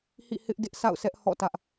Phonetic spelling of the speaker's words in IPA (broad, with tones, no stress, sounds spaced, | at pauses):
h ḭ˦˨ h ɪ˦ ʔ d ɪ˦ ʔ s a̰˦˨ ʊ̯ s ɛ˦ ʔ h ɔ̰˦˨ t ä˦ ʔ